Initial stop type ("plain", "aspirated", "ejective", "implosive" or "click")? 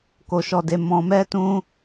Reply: plain